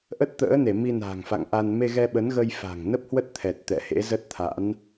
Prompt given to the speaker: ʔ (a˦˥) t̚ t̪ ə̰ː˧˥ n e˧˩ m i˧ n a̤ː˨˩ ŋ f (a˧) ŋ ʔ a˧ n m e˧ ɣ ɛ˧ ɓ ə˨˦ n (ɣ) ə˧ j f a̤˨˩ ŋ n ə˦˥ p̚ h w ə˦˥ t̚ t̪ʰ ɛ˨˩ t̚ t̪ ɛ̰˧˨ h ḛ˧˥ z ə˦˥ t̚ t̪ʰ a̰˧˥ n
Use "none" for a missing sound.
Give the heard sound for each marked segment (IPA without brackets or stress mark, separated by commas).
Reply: ə˦˥, a̰˧˨, ɣ